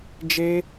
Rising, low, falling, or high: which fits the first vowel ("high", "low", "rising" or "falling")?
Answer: high